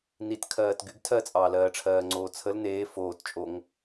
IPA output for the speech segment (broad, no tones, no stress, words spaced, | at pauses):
nit kʰɜːtɡyɡ tʰɜt͡sʼɑːlɜːʈ͡ʂʰɜː ŋ͡ǀoːt͡sʰəl neː foːt t͡ʃʼoŋ